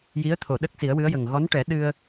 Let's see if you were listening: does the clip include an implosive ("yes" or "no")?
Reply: yes